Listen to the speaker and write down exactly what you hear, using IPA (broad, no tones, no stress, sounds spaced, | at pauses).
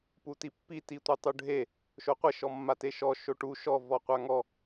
p u t i pː i t i tʷ i tˤ u ɖʱ e | ʃ o qʷ e ʃ ɔ mː a t e ʃ ɔ ʃ o ʈ u ʃ ɔ v ɔ qʷ a ŋ ɔ